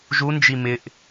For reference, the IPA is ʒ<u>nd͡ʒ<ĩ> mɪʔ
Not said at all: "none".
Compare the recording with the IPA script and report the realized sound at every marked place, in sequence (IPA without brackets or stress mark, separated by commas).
u, i